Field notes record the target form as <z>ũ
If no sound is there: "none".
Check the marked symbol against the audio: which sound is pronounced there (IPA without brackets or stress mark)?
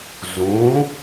z